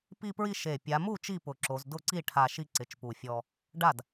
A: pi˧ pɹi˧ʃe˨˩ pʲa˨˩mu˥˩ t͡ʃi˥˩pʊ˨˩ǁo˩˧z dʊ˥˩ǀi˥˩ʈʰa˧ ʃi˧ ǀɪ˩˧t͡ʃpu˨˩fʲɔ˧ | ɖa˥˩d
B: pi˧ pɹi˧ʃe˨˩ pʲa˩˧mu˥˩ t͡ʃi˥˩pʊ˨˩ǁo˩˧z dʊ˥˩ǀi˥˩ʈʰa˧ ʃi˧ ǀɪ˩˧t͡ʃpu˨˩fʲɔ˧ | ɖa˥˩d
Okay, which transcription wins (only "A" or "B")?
B